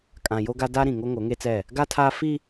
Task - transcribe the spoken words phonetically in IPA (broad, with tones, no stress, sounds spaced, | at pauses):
kʼ ã˨ j o˦ ɡ a˦ d a˦ ɾ ĩ˨ ŋ o˦ ŋ o˨˦ ŋ e˦ t͡s ɛ˦˨ | ɡ a˦ tʰ aː˦ f i˦